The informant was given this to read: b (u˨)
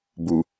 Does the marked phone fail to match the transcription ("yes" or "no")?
no